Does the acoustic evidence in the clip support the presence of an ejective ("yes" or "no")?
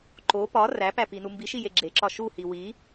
no